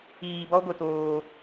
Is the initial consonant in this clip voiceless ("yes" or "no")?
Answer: no